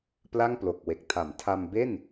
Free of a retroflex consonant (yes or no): yes